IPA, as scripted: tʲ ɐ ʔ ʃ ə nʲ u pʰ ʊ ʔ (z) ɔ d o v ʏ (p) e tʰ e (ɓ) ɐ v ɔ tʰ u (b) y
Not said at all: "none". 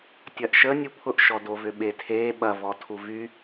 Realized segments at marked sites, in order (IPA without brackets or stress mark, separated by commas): ʃ, ɓ, ɓ, v